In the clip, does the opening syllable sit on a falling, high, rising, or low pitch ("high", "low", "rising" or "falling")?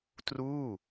falling